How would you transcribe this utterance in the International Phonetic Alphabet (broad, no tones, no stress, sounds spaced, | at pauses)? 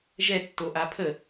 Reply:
ʒ ɛ tː o ʔ a pʰ ə